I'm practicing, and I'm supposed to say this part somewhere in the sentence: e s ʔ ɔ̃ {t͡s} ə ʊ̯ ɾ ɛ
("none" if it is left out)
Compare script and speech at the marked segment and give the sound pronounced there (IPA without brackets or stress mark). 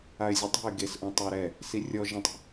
tˤ